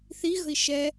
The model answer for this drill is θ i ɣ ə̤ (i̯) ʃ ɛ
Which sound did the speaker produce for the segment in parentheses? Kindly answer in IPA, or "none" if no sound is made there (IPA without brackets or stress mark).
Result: i̯